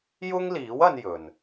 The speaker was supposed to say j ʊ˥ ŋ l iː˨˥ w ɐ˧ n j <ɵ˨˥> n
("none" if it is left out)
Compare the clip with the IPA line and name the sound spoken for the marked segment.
ɵ˨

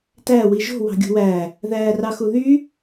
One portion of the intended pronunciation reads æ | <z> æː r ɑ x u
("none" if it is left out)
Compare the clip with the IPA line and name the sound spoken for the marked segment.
ð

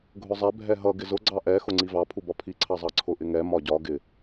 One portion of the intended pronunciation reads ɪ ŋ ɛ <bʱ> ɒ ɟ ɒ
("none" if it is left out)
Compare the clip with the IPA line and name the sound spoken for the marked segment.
m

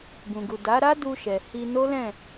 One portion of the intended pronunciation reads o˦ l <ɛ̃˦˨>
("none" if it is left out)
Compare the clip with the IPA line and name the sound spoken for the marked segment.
ɛ̃˦˨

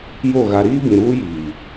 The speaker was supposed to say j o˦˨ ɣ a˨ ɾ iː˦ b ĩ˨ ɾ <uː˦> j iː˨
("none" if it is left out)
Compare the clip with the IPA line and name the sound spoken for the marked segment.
uː˦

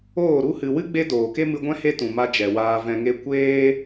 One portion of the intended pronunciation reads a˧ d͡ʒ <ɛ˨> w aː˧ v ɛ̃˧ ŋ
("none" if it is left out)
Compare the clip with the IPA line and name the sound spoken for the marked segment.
ɛ˨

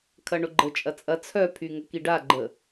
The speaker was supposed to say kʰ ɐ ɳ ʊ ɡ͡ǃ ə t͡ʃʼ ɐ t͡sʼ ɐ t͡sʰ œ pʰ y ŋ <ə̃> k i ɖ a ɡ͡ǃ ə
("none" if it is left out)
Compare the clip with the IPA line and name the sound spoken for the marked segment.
ə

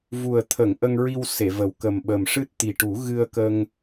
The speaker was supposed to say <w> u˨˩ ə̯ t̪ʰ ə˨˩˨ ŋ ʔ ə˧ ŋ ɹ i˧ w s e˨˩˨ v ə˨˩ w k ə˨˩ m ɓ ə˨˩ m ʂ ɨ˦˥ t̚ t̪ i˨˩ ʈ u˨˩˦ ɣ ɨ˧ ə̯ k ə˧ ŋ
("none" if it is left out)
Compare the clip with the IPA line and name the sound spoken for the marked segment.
v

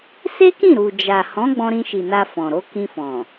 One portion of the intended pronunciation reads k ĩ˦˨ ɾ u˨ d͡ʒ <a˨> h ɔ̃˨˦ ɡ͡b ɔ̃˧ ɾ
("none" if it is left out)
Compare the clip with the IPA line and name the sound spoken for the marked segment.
a˨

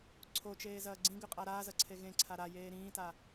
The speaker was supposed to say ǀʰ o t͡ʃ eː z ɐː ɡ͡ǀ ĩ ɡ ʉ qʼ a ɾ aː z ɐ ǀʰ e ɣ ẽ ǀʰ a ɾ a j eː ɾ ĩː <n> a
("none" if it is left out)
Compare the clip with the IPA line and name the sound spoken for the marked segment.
t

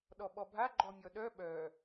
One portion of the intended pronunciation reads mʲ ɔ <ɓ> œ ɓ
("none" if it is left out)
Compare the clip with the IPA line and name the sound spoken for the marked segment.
ɗ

